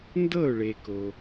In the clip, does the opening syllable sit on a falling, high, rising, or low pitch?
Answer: falling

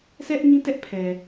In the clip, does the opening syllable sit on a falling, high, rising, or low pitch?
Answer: high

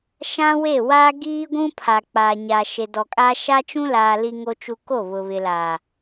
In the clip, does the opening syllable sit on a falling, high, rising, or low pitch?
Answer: high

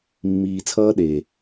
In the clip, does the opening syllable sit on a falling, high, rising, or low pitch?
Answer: low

